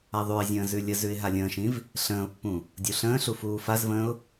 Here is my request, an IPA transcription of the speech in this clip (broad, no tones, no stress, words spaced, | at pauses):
aðˤʉɪ̯zʲə̃ː zʉlʲəzʉɪ̯ ɦalʲə̃ːʃĩv | ɬə̃ːʊ̯pːũ | dʲuɬə̃ːɬu fuːfazvə̃ːʊ̯